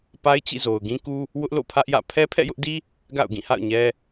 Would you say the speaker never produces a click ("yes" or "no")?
yes